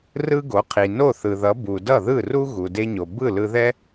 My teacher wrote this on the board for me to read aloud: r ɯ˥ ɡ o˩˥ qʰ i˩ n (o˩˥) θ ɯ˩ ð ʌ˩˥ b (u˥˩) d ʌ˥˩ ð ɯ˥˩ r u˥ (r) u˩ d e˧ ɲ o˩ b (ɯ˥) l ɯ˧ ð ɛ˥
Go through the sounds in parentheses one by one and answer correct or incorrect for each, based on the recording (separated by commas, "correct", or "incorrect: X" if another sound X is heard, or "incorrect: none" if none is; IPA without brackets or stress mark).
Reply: incorrect: o˥˩, incorrect: u˩, incorrect: ɣ, incorrect: ɯ˥˩